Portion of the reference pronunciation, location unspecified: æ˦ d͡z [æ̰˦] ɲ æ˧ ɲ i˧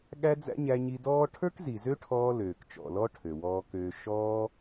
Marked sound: correct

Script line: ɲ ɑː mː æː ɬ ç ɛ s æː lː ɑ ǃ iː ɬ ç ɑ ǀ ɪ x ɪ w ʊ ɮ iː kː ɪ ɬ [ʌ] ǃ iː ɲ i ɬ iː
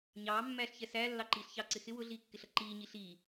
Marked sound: correct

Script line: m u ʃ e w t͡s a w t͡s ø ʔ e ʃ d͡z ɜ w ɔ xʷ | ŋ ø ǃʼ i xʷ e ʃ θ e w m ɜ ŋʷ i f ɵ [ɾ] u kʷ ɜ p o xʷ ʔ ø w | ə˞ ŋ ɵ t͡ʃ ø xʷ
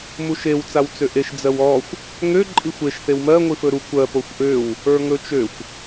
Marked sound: correct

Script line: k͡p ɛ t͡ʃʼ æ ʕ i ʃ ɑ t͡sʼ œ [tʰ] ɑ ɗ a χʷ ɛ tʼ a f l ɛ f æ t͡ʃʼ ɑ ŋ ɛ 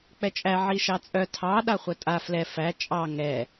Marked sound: correct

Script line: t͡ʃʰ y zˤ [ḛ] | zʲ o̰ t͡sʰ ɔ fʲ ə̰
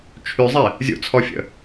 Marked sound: incorrect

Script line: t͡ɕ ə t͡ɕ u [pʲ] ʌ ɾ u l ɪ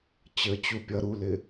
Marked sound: correct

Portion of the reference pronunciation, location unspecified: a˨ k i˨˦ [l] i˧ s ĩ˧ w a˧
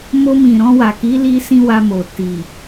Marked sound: correct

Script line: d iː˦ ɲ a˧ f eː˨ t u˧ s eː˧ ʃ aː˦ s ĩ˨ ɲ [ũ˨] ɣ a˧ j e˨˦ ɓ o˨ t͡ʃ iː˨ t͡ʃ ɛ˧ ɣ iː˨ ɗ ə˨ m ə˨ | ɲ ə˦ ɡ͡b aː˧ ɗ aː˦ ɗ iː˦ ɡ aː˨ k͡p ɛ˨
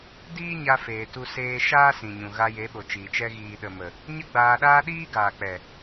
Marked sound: correct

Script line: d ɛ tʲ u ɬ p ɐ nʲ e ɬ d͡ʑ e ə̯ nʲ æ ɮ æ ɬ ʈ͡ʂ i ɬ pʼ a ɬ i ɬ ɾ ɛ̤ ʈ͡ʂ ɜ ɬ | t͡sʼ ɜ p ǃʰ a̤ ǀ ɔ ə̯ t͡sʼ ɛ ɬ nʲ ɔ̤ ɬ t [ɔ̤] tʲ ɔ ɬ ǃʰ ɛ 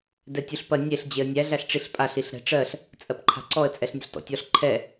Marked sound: incorrect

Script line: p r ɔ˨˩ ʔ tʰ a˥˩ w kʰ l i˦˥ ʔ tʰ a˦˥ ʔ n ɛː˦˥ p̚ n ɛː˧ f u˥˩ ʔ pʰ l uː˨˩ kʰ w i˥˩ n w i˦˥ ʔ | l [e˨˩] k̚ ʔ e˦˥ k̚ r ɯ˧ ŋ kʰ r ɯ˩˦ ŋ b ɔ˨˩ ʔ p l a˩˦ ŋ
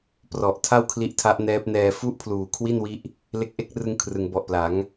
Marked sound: incorrect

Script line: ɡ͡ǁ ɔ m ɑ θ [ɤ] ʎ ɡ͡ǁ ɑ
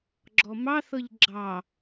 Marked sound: correct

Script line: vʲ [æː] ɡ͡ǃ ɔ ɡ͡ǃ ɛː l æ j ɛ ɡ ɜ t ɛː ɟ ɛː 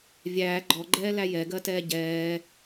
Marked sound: correct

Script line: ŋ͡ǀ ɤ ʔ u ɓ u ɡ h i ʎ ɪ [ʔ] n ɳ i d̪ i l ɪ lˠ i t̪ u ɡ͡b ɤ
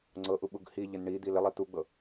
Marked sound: incorrect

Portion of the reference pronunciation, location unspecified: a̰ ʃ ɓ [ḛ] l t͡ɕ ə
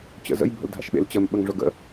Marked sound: correct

